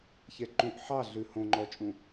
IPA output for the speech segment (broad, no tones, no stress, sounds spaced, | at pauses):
ç ɛ ǃ ũ ʔ ħ ɑ ɮ ʉ h õ ŋ͡ǃ ɔ t͡ʃʼ ũ